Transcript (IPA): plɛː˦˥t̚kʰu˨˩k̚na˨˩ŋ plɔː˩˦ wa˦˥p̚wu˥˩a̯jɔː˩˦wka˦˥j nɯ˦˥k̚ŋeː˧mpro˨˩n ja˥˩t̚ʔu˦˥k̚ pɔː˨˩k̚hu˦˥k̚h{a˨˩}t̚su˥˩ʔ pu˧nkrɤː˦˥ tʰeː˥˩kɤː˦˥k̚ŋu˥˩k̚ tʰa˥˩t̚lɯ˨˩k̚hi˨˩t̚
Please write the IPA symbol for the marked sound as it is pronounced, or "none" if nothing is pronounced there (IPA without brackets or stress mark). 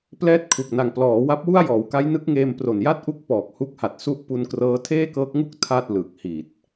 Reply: a˨˩